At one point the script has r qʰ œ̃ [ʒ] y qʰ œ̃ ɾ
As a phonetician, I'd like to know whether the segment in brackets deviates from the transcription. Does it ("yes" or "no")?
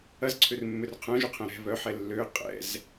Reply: no